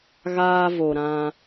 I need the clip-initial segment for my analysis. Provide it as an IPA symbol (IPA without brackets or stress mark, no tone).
ɣ